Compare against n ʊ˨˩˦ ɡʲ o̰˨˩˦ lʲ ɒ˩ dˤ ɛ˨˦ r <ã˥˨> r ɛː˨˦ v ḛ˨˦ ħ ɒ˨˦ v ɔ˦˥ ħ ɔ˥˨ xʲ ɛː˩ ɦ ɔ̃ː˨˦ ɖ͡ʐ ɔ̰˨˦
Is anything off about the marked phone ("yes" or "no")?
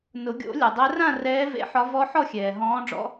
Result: no